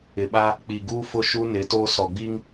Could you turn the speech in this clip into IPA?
ɪ˨ ɓ a˦ | k͡p i˨ ɡ uː˦ f ʊ˦ ʃ u˦ n ɪ˨˦ t oː˦ s ɔ˨ ɡ͡b i˦ ŋ

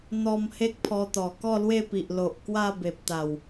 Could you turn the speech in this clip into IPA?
n̪ ɔ˧ m h e˦ k̚ pʰ ɔ˧ t̪ ɔ˨˩ k ɔ˥˧ l w e˥˧ p i˨ ʔ l o˨ ʔ k w a˥˧ b e˨ p̚ t̪ a˨˩ w

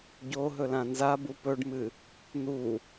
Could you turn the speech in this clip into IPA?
ɟ o ɦ ɵ l ã n z a b u p ɵ ɖ m ɨ | n̪ u

